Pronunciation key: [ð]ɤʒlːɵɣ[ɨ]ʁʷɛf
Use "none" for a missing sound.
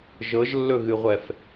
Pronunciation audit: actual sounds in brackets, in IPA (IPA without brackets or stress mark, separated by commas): ʒ, ɨ